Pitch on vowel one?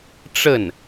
falling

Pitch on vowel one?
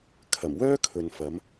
low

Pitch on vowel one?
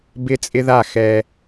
high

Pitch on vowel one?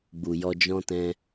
low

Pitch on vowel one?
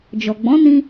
low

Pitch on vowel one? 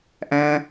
low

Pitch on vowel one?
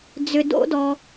low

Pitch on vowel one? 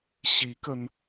rising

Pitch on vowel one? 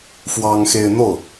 high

